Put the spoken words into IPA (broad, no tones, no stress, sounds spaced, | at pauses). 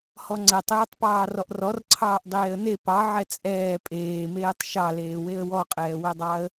h ɔ ŋ͡ǀ ɛ tˤ ɛː tˤ p ɑː r ɔ ʔ r ɔ r ǀʰ ɑː ʔ dˤ eː ə̯ n e p ɑ ʕ ɛ t͡sʼ ɛː pʼ eː m eː tˤ ʃ ɑ l eː w e ə̯ w ɔ qʼ ɛː w ɛ dˤ ɑ ə̯